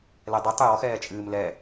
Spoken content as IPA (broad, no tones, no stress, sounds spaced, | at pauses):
l ɛ dˤ ɨ tˤ j ɔ x ɛː t͡ʃʼ ɨː m l ɛ